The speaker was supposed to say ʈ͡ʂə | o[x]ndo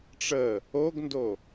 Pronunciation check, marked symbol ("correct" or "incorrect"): incorrect